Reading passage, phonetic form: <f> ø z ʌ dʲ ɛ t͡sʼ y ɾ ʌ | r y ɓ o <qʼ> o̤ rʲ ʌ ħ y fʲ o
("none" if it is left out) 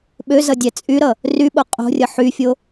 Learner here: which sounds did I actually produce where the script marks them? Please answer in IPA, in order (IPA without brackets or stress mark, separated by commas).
ɓ, qʼ